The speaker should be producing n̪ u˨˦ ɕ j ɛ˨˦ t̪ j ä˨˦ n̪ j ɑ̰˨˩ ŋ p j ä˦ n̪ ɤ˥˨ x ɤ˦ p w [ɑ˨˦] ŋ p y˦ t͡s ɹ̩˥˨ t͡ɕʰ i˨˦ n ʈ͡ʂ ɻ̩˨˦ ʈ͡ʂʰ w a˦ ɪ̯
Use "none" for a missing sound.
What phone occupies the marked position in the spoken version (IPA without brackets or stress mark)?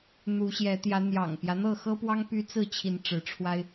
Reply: ɑ˦